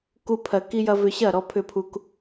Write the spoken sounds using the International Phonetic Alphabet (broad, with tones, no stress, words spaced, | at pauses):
ku˦pʰɜ˧ ki˦jɐ˦ vʏ˧ɕɐ˦˨ ɾɔ˦pʰʏ˦pʰu˦k